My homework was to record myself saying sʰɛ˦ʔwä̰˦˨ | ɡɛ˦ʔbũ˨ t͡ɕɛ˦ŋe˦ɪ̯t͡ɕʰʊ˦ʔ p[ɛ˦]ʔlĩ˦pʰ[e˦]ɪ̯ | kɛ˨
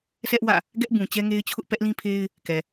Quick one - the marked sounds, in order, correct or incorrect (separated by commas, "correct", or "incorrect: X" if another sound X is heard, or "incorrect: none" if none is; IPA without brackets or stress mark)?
correct, correct